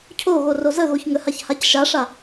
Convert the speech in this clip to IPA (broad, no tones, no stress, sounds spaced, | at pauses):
cʰ o ɣ o r o z ə ɣ o ç ŋ ə h a ç h a c ʃ a ʂ a